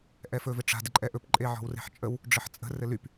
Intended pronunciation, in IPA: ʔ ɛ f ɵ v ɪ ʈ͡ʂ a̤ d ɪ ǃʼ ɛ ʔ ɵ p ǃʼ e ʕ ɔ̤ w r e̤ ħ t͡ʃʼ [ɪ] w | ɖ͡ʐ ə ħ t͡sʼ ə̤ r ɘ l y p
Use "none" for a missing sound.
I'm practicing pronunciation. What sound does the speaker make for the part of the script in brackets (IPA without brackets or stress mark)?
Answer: ə